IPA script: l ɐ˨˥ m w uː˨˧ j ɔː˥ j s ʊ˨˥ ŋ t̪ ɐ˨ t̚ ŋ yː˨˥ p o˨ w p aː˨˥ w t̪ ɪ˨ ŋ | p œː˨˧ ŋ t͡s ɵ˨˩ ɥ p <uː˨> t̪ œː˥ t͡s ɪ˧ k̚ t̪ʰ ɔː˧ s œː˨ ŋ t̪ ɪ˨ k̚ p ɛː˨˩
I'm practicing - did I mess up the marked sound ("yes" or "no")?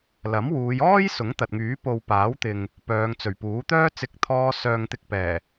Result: yes